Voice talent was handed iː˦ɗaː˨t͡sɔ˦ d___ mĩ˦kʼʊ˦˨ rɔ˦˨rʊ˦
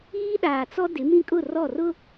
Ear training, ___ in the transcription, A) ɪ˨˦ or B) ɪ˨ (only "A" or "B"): A